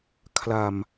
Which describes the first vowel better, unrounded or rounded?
unrounded